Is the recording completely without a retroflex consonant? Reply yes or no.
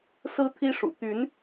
no